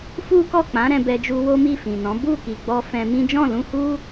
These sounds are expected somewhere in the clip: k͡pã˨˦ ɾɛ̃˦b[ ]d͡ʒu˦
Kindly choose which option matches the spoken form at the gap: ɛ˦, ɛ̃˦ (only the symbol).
ɛ˦